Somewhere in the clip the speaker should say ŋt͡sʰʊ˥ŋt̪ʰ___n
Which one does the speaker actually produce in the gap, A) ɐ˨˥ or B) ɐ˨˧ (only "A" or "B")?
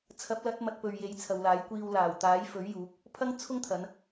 B